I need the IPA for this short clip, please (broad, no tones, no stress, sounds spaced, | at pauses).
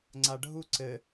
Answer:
ŋ͡ǀ a ɖʱ u ǀ ɘ